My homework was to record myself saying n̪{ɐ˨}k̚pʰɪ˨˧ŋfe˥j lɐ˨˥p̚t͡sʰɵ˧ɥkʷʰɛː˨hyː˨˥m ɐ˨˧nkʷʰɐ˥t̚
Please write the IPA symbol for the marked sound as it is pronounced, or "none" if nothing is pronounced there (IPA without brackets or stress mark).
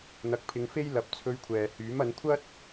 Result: ɐ˨